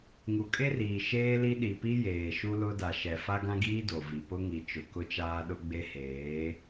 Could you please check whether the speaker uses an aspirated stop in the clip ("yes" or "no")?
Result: no